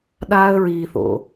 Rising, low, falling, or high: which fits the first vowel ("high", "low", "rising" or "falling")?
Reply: high